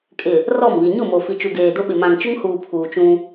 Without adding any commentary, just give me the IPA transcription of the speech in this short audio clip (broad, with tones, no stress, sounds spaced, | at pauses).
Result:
kʼ ɪ˨ | r ɔ˦˨ m β i˨ ɲ ʊ˦˨ m o˨ f i˨ t͡ʃ u˨ ɡ eː˨ d ʊ˦ ɓ ɪ˨ m ã˨ ŋ t͡ʃ ʊ˦ ŋ h uː˨ pʰ uː˨ t͡ʃ ũ˦